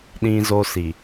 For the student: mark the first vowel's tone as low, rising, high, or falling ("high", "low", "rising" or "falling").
high